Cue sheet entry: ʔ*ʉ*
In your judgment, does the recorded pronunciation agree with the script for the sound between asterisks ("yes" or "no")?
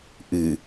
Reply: no